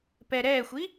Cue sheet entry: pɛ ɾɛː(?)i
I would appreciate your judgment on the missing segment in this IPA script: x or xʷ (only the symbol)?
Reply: xʷ